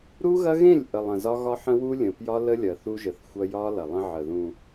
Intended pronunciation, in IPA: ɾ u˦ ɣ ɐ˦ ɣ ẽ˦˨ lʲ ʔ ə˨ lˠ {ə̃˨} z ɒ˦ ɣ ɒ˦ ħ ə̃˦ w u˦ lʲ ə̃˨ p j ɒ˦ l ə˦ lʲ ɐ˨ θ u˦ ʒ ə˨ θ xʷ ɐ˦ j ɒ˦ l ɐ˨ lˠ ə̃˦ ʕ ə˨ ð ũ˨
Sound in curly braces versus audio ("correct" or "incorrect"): correct